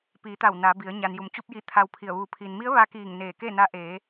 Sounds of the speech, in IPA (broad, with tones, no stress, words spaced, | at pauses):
piː˩˧t̪a˧˩w na˩˧ bi˩˧ə̯ ɲa˩nju˩m t͡ɕu˧p̚ji˧˩ t̪ʰa˧wpʰi˧˩ə̯ ʋuː˩˧pʰiː˩nmi˧˥ə̯ ʋa˧kiː˧˩ŋ neː˧˩ke˥˨na˧˥ ʔeː˩˧